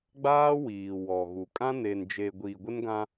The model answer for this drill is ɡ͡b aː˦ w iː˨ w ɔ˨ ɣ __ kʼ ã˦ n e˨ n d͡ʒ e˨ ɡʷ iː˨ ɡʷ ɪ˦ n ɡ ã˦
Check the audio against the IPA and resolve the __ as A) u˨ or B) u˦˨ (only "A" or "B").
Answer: A